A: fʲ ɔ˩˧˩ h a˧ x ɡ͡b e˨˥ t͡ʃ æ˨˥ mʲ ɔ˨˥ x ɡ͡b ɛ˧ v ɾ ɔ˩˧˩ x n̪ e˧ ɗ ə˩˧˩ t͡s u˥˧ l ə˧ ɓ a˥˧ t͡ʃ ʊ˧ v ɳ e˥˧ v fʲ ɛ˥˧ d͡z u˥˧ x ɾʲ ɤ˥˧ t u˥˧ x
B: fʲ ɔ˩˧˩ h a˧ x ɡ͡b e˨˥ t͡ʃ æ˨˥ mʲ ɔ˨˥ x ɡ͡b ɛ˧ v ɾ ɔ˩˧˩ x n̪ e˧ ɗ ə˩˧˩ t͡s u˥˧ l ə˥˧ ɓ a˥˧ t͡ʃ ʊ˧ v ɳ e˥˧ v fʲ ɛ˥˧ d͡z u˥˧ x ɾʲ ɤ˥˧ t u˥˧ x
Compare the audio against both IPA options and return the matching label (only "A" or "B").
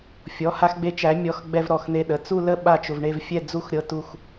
B